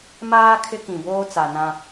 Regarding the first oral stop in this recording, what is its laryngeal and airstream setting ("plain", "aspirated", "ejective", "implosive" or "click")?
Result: aspirated